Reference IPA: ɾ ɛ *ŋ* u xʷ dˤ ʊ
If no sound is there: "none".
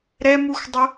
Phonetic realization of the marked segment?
m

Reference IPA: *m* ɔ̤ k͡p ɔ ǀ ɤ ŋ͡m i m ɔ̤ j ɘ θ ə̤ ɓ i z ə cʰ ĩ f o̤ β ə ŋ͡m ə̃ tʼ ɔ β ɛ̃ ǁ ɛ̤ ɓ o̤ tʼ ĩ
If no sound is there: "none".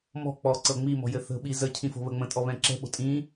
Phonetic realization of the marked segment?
m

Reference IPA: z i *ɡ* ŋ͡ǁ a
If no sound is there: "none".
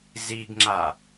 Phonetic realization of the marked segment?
ɡ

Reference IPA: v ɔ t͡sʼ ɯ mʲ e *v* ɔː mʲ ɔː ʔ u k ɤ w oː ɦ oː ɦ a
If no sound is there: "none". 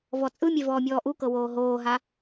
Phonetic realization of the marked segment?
v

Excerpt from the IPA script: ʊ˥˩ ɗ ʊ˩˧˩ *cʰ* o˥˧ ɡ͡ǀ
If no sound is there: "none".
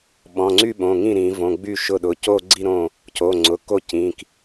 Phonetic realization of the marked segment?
c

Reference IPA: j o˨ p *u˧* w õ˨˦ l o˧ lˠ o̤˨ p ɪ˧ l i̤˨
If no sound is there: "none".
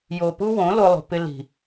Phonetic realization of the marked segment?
u˦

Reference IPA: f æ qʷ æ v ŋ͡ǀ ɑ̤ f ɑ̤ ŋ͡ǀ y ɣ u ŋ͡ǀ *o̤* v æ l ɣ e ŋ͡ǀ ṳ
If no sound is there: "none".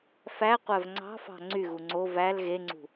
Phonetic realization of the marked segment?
o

